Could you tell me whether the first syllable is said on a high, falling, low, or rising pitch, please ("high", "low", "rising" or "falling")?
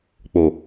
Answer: low